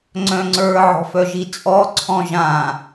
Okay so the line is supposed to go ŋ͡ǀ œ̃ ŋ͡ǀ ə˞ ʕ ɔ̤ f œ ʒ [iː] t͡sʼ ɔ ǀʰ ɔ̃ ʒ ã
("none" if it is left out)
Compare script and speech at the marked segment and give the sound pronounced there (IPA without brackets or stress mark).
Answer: i